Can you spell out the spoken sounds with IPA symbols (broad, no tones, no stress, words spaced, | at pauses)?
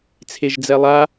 t͡sʰeʒd͡zɛlˠa